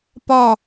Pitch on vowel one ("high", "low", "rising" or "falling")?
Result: falling